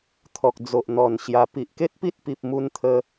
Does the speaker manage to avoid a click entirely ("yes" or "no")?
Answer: yes